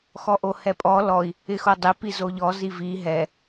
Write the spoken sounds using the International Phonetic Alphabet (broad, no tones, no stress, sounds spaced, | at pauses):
x ɔ ʔ o h ɛ pʼ ɔ l ɔ i̯ | ɪ x o dˤ ɪ p i z o ʎ ɔ z i v i ɦ ɛ